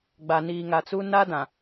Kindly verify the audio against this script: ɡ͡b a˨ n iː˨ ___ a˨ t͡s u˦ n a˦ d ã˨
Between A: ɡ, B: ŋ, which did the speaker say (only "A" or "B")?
B